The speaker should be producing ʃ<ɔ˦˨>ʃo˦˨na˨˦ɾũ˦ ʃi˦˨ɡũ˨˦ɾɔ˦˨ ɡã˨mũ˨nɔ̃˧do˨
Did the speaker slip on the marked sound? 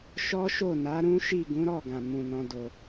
yes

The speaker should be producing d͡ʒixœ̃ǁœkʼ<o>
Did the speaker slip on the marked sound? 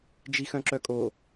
no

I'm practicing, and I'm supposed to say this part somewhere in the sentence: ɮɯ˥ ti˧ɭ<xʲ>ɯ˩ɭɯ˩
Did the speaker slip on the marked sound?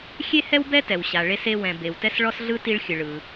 no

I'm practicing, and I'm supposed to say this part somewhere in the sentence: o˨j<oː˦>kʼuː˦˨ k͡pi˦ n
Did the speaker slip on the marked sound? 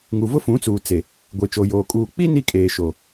yes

